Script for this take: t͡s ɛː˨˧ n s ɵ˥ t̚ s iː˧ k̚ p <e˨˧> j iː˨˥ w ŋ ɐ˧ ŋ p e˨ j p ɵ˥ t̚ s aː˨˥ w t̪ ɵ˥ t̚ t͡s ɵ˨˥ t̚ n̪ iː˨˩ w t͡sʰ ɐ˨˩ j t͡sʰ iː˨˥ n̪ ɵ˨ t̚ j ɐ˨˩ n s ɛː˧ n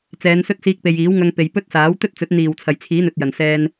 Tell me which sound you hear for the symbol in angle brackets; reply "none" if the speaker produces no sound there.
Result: e˨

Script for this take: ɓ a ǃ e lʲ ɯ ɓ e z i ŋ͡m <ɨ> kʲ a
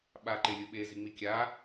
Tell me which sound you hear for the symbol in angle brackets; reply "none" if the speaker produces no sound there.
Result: i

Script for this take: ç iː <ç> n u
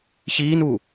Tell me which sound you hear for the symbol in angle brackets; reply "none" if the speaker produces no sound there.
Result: none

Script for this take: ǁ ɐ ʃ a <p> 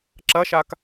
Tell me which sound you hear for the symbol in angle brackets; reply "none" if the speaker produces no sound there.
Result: k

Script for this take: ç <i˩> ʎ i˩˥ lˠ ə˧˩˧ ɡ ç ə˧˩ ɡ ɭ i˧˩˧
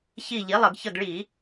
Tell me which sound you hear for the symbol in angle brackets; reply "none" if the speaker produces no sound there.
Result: i˧˩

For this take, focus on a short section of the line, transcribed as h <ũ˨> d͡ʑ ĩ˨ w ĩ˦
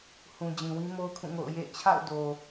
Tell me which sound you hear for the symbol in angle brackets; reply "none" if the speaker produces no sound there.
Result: ũ˨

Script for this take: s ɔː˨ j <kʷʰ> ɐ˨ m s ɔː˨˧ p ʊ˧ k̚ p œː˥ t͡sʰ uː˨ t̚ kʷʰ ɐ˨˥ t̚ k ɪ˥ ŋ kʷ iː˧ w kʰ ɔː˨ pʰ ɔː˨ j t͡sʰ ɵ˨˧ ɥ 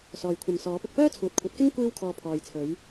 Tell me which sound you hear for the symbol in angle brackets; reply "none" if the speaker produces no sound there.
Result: kʷʰ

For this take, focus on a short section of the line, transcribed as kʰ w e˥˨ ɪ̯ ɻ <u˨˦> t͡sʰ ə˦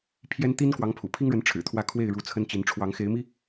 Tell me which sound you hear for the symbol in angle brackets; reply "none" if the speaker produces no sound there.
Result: u˨˦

